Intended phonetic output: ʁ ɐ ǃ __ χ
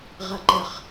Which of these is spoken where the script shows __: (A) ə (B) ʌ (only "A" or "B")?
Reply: A